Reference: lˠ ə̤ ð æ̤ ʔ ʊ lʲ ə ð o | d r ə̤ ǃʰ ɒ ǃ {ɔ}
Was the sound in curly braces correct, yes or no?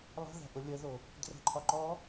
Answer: yes